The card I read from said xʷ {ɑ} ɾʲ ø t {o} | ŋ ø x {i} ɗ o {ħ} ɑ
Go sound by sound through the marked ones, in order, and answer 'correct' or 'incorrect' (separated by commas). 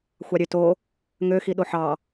correct, correct, correct, correct